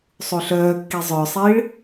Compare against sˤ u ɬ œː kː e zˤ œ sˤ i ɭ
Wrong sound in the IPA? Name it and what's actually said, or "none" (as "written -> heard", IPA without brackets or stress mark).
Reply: e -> i